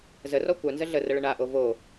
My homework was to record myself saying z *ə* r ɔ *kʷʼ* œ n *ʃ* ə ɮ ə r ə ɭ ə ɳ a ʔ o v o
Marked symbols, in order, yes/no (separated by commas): yes, no, no